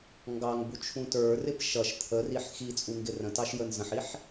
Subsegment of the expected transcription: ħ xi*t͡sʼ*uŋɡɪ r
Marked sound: correct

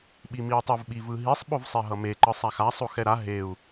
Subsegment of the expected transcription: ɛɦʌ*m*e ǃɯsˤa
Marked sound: correct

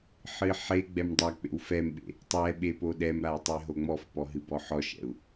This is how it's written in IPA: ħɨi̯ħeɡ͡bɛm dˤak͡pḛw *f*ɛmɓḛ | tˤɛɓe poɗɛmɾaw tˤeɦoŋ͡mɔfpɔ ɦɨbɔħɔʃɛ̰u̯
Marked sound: correct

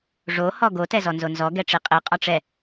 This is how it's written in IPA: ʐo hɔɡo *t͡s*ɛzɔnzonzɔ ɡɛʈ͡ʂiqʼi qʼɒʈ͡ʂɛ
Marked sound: incorrect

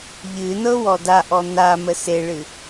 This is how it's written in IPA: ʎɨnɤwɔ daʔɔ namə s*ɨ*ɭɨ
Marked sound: incorrect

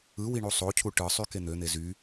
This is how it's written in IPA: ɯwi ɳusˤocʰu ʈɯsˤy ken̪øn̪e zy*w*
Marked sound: incorrect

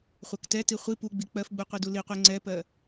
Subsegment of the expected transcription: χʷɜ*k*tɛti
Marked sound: correct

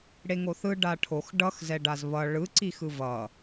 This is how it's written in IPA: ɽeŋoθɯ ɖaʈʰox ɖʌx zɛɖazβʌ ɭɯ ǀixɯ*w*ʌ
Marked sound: incorrect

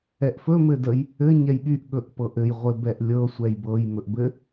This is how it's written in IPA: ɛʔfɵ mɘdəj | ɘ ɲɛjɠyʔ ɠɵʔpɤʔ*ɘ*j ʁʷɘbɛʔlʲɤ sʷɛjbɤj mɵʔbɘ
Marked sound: correct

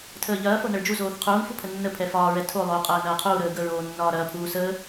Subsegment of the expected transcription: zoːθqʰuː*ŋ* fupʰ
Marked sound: correct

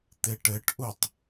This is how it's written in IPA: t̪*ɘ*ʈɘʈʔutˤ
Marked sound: incorrect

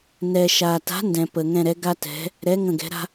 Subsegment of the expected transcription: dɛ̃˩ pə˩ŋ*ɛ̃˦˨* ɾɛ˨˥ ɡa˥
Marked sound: correct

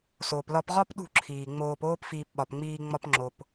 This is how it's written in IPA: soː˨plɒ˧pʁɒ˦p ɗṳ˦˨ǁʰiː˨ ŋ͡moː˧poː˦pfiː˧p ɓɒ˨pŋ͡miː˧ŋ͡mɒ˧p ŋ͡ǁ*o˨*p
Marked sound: correct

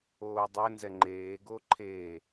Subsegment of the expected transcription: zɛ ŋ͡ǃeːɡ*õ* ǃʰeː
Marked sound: incorrect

